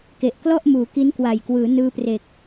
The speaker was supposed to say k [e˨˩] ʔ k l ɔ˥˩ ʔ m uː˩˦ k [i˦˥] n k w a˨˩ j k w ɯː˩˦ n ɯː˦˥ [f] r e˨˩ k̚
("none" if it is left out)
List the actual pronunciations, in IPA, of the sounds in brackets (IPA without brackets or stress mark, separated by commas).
e˨˩, i˦˥, p